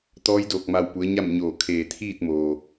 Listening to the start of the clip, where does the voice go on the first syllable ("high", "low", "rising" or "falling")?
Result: rising